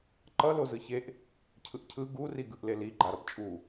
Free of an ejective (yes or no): no